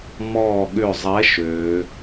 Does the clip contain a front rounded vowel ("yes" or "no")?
yes